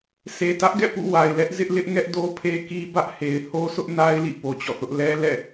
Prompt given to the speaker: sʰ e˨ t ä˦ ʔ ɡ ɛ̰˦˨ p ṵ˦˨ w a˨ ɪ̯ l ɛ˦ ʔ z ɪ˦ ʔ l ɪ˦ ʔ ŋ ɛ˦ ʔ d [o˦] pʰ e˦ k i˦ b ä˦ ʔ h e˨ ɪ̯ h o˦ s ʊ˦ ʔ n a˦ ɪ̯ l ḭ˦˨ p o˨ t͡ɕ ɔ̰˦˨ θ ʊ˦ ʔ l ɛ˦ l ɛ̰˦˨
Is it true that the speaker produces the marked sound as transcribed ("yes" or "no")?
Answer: yes